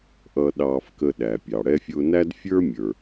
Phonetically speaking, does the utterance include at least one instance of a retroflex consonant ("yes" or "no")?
yes